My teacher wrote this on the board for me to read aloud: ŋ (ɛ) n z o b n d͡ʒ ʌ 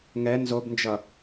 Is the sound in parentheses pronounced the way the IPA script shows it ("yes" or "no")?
yes